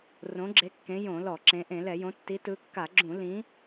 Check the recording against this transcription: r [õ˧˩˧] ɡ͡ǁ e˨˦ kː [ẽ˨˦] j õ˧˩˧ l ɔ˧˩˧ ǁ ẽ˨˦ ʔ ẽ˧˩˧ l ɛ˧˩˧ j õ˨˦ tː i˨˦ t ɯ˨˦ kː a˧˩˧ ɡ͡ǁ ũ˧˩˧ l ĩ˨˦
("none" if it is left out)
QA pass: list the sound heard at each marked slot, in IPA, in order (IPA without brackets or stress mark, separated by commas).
õ˨˦, ẽ˨˦